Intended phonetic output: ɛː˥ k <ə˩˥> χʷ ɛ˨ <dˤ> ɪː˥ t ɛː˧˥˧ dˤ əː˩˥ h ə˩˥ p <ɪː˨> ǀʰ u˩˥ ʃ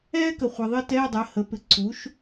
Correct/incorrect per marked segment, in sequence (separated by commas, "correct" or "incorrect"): incorrect, incorrect, incorrect